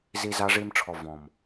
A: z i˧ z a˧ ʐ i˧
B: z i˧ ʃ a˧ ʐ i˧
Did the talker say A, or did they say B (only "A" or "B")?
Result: A